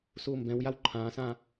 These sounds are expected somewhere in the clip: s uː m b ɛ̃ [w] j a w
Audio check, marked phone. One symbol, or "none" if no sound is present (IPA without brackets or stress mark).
w